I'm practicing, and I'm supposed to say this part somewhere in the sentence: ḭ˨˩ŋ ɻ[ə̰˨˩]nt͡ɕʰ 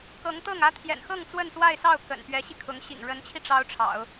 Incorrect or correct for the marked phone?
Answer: incorrect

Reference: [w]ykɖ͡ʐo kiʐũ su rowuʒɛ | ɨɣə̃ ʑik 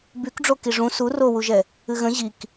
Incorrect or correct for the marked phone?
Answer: incorrect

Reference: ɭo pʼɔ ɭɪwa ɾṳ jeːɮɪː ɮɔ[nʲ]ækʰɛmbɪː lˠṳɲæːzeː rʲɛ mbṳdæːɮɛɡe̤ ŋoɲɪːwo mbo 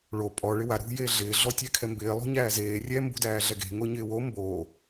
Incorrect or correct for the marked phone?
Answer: incorrect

